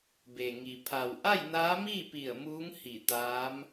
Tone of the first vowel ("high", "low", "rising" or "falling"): low